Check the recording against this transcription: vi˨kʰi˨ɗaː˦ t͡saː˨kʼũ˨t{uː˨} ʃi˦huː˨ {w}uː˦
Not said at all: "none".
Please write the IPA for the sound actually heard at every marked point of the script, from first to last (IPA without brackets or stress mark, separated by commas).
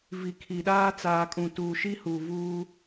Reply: uː˨, v